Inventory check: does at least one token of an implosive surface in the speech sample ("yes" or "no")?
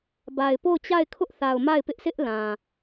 no